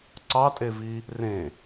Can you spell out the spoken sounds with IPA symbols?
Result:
ǀɑtʼevi | rẽ

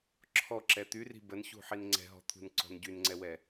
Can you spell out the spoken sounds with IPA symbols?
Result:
ǁʰɔǁɛ t̪yri̤ bənçṳħin ŋ͡ǀɛ̤ɦɔ̤t̪ʰṳnǀɔ̤n ɟynŋ͡ǀɛwɛ

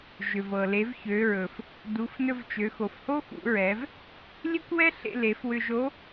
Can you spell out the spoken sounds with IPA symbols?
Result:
ʒʏ˩vɤ˩le˩˧v çø˩˧ɹɵ˩f | du˩˧fnɵ˧vt͡ʃø˩˧ xo˩fho˥xṵ˩˧ ɹɛ˩˧v | lʲe˥kʷwɛ˥ɬḛ˧ le˩˧fwʏ˧ʒo˧˥

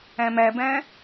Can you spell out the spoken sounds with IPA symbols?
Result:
æ̃mæbæ̃

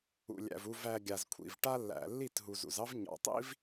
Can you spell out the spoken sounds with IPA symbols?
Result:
ṵ˨lʲæ̰˨v u˨væ˨ ɡʲa˨zkʷʰḭ˨v ʈa˦lːæ̰˨ lːi˦˨tɦu˨zṵ˨zɑ˦v ɲɑ̰˨tˤḭ˦v

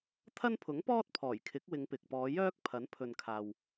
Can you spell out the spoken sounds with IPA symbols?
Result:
t̪ʰɐ˥npʰʊ˨˥ŋpɔː˥t̚ pʰɔː˨˩jkʰɪ˨˥k̚ wɪ˨˧ŋpɪ˨k̚pɔː˨˧ jœː˥k̚ pʰɐ˨˥n pʰɵ˨nkʰaː˨w

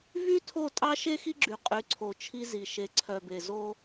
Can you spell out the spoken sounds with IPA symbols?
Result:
vy˦tʰo˦˨ tʼɑ˦ʃe˦xi˦ɡ͡ǁy˨ qʼy˨˦ǀʰo˨t͡ʃʰi˦ zi˨ ʃe˨ ǀʰœ˨be˨ zo˦

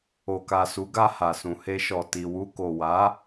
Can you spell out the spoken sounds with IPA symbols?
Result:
o˨ka˨ su˨˦ɡa˧ ha˨sũ˨he˧ʃɔ˨ ti˨wu˧ko˨ wa˨˦

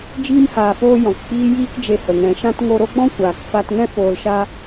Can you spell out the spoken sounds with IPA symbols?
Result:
d͡ʒiː˧mhaː˨foː˧ jɔ̃˨kk͡piː˦ jiː˦kd͡ʒe˧hə˨ ŋɛ̃˨ʃã˦t ŋo˧ɾo˦ɡ͡bɔ̃˦ kʷaː˨kfa˧tŋɛ̃˦ foː˧lʃa˦

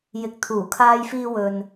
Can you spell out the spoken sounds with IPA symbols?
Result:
jɪ˨k̚t̪ʰuː˨˩kʰaː˧jfiː˧ wɵ˨n

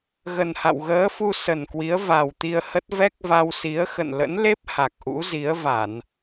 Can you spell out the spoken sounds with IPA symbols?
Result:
ɣə˨˩nha̰˧˨wɣəː˨˦fu˧ sə˨˩nkwi˨˦ə̯va˨˩w t̪i˧ə̯hə˦˥t̚ vɛ˦˥k̚va˧wsi˨˦ə̯ xə̰˧˨nlə̰˧˥nle˦˥p̚ ha˨˩k̚ʔṵ˧˥zi˨˦ə̯va˧˩˨n

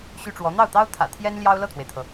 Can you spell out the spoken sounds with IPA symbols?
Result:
ɕy˥ʈ͡ʂwɔ˧˥ n̪ɑ˥˩ʊ̯t̪ɑ˥ʊ̯t̪ʰä̰˨˩ t̪ʰjɛ˥n ljɑ˥ʊ̯lɤ˥˩t̪ʰwe˩ɪ̯t̪ʰɤ˩

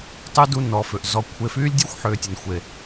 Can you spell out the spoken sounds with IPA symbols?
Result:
tˤy˦du˧ nɔ˨fʏ˨ʔzɔ˧ kʷʰe˧ fyː˦lʲdʲɔ˦xʷħʏː˨tʲɐ˨n xʷe˨

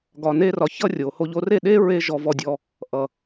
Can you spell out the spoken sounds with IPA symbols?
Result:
ɡɒ˨ne˧rɒ˨ çʌ˦rʲo˨ho˧ʎ o˧re˦˨ɗe˦ ɹe˦ʒɔ˧vɔ˧dʲɔ˧ | ʔʌ˨

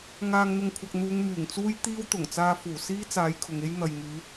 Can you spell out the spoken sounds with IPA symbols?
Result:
ŋaː˨ŋn̪ʊ˨ŋkʷʰɐ˨k̚n̪uː˨˧ŋ myː˨˩ŋt͡suː˥jt̪iː˥wt̪ʊ˨˩ŋ t͡saː˧fuː˨˩ siː˥t͡saː˨˧j kʰʊ˨ŋe˥j n̪ɐ˨jŋyː˨˧

